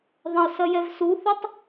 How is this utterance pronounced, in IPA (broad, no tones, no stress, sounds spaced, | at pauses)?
ðˤ ɐ̃ ʊ̯ s ɐ j ɛ v s u θ ʏ tˤ